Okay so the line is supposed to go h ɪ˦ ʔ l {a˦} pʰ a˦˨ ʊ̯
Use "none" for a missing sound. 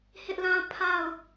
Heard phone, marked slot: ã˦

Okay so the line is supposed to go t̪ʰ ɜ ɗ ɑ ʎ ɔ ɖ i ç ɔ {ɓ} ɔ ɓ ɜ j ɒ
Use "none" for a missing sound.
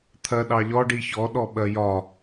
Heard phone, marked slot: ɗ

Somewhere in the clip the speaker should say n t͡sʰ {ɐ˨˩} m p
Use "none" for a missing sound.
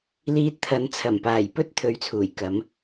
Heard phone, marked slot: ɐ˨˩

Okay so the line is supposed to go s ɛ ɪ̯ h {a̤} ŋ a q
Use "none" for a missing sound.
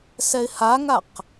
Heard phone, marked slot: a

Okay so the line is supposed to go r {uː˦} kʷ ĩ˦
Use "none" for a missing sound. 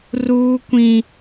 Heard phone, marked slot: uː˦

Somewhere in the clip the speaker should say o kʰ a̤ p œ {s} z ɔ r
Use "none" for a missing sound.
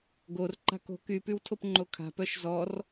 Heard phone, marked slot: ʃ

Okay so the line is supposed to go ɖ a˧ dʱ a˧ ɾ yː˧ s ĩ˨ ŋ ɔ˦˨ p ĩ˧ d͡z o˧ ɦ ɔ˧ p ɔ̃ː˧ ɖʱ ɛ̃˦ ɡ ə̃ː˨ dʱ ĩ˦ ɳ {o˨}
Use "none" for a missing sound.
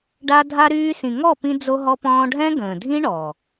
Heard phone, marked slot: ɔ˨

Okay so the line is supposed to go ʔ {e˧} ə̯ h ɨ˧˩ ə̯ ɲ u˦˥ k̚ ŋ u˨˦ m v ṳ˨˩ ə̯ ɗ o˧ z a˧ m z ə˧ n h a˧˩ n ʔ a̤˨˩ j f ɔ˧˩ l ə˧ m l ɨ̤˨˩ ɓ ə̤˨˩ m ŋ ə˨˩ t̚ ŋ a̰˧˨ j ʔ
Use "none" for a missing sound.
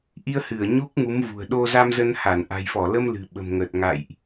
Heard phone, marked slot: i˧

